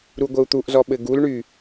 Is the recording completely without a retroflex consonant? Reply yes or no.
no